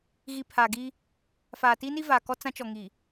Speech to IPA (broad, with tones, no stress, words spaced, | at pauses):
ɣi˨ pʰaː˨ɡi˦ | faː˨ ti˦ni˦vaː˨ kɔ˦ t͡sã˦ t͡ʃɔ˨ŋi˨